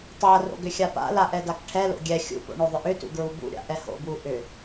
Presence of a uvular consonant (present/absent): absent